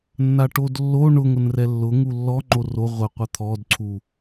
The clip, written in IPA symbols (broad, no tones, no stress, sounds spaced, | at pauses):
nː a ʈ o d lː o ɳ ʊ ŋ ʊ n r ɛ lː ʊ ŋ u lː ɔ ŋ͡ǃ o r o ʁʷ ɛ qʷ a t̪ʰ ɔ d ǀʰ u